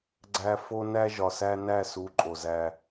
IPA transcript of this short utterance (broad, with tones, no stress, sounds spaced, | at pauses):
ɡ͡ǀ æ˨ f o˨ n æ˦ ʒ ɒ˨ s æ˦ n æ˦˨ s u˨˦ ǃʼ o˨ z æ˦